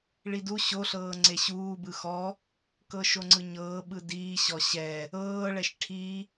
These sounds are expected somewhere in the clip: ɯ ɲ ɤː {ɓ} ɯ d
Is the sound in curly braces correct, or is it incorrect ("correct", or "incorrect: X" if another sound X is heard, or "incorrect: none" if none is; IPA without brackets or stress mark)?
correct